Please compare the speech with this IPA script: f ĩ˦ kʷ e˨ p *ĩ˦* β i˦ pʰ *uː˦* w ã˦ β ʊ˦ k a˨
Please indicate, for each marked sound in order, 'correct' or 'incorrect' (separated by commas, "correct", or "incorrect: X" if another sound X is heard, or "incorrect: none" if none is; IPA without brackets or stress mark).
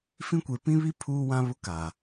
correct, correct